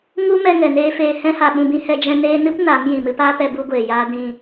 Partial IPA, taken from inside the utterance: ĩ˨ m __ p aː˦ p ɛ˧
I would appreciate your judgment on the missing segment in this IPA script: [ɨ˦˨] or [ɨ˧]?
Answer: ɨ˧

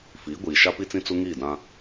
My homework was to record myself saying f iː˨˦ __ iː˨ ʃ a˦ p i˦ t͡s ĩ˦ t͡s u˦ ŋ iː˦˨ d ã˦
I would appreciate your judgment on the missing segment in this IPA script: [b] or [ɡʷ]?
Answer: ɡʷ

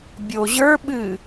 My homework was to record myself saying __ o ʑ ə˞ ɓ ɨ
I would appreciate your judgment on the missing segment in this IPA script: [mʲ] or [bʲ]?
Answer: bʲ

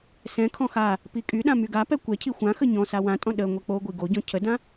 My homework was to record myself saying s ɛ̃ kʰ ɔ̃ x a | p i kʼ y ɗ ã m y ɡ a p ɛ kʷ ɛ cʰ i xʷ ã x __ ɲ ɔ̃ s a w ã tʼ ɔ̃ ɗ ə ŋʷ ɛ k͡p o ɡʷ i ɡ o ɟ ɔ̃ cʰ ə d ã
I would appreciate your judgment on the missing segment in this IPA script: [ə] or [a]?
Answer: ə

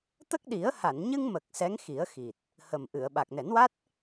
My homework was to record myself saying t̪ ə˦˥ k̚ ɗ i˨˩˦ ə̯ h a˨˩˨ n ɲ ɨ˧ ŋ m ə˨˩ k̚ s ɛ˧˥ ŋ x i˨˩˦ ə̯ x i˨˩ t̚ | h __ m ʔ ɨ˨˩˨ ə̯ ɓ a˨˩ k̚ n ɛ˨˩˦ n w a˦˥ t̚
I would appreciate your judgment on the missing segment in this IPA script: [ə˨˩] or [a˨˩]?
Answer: ə˨˩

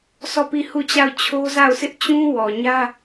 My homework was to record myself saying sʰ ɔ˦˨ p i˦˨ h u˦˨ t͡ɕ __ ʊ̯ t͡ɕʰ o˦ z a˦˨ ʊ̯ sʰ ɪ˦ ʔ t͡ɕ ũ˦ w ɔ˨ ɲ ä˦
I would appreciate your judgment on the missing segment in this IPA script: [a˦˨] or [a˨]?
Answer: a˦˨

